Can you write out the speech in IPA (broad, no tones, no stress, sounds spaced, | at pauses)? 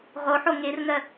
ʁ o ħ o ŋ e r ŋ ɜ